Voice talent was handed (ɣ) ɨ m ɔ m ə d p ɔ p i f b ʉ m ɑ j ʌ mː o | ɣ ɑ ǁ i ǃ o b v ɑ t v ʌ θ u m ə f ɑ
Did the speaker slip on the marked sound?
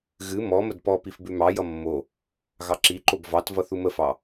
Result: no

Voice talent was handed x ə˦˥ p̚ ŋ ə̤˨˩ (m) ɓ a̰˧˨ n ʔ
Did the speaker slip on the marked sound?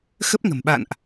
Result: no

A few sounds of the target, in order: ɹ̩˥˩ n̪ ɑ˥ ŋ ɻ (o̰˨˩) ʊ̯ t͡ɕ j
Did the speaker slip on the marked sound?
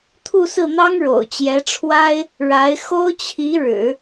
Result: no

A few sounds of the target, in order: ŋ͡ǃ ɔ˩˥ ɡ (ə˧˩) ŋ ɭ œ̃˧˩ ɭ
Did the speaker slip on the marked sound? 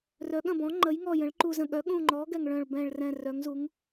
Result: yes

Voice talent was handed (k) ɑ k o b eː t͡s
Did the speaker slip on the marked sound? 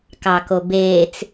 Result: no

